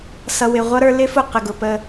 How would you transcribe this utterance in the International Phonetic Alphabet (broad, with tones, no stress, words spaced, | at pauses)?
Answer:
sʌ˨wɪ˨ʁʷʌ˦ɾə˞˦ lɪ˦fʊ˦˨qə˨ ɡʊ˨pə˦